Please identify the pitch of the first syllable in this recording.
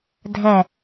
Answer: falling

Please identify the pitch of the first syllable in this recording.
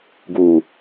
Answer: low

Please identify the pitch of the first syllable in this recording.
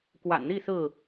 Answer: low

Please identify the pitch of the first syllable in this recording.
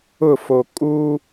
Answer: falling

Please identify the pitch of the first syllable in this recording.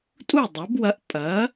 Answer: falling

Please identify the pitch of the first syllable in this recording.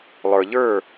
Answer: low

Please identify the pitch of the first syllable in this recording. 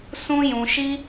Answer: high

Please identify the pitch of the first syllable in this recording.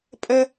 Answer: high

